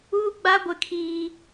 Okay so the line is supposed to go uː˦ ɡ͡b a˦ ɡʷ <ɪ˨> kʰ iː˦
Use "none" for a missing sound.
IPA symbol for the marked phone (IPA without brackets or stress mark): ɪ˦